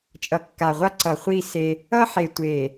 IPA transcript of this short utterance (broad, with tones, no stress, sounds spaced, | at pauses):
t͡ʃʼ ʌ˨ kː a˨ ʁʷ a˦ ǀ ʌ˨ χʷ i˦˨ s e˦ | ʌ˦ ħ e˨ tʷ e˨